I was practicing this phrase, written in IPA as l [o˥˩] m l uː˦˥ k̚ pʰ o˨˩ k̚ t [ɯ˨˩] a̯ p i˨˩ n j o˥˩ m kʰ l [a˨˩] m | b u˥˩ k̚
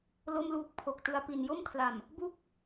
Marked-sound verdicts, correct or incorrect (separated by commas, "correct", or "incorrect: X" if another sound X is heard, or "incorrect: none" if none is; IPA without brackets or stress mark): correct, correct, correct